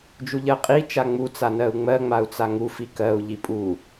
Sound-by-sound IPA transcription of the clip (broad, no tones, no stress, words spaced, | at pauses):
d͡ʒuʎɜqʼi t͡ʃaŋ͡mu t͡sanɜu̯ŋ͡mɜ ŋ͡mau̯t͡saŋu fikɜu̯ ʎipʼu